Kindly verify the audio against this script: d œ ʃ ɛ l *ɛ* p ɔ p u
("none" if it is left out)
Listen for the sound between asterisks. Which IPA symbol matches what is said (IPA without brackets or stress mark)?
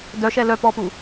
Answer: œ